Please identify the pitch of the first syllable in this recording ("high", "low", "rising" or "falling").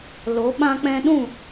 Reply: rising